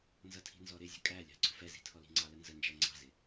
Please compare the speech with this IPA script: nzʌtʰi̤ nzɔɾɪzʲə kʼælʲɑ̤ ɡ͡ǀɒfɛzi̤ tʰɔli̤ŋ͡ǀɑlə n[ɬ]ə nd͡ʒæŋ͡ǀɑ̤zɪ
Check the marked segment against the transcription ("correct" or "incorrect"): incorrect